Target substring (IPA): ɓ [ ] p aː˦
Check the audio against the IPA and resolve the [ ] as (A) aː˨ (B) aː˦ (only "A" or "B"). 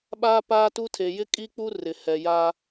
B